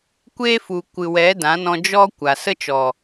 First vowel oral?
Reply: yes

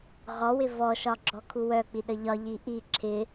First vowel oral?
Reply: yes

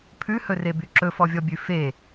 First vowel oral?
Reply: yes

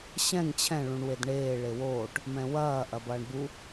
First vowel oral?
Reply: no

